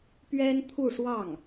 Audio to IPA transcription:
p ɥ ɛ˥ n t̪ʰ u˥˧ ʂ w ɑ˥˩ ŋ

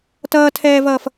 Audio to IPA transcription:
t ʌː tʰ ɛː v ʌː f

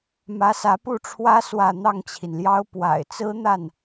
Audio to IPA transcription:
m ä˧˥ s ä˧˥ p u˥˩ ʈ͡ʂʰ w ä˥ s w ä˥˧ n̪ ɑ˥˩ ŋ t͡ɕʰ i˩ n l j ɑ˥ ʊ̯ p w a̰˨˩ ɪ̯ t͡s ɹ̩˥ n̪ a˥˩ n

